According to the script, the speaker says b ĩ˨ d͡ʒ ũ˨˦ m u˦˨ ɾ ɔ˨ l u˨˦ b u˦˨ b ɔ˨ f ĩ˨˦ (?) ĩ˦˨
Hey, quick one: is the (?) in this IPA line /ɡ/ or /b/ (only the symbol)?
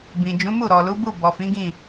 ɡ